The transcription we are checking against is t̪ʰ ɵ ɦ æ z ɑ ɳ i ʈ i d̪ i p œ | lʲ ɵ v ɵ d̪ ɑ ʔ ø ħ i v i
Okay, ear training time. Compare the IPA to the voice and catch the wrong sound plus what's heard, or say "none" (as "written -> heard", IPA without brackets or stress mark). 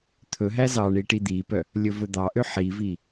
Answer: none